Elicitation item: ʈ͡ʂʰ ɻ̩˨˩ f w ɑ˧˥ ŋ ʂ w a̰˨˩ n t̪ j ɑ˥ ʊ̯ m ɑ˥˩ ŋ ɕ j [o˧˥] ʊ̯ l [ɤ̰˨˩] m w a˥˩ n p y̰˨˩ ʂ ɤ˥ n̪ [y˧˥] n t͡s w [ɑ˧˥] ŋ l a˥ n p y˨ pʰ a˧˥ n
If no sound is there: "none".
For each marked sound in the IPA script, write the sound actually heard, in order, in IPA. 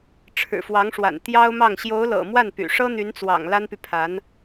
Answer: o˧˥, ɤ̰˨˩, y˧˥, ɑ̰˨˩

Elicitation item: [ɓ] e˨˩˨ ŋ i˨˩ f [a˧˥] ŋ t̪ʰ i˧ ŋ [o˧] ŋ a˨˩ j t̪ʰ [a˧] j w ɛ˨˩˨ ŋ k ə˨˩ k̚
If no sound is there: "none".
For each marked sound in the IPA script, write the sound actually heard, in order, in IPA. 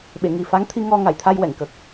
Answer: ɓ, a˧˥, ɔ˧, a˧

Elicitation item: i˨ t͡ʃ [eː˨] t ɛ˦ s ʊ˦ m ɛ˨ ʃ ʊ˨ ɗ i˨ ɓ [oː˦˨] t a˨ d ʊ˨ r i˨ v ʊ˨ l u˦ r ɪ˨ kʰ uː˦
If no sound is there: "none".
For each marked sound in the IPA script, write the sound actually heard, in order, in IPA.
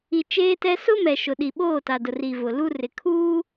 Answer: eː˦, oː˦˨

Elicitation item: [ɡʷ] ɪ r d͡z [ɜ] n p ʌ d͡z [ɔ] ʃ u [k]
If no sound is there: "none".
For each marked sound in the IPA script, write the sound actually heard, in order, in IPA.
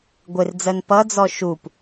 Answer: ɡʷ, ɜ, ɔ, p

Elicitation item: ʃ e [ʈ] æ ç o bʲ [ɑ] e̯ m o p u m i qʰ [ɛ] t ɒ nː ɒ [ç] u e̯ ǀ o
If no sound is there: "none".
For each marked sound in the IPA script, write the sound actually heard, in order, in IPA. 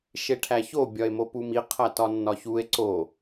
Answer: ʈʰ, ɒ, æ, ç

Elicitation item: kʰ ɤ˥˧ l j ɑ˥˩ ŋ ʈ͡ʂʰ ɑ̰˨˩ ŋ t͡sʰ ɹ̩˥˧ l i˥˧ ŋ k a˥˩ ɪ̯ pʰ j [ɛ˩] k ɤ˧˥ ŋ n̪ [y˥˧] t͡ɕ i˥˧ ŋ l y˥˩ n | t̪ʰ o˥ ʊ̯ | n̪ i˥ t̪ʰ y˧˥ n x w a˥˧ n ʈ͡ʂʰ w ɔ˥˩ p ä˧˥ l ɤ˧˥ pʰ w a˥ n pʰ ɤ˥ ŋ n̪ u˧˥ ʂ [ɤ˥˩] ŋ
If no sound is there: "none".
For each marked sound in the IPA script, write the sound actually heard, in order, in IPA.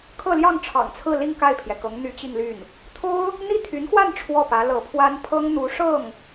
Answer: ɛ˩, y˧˥, ɤ˥˩

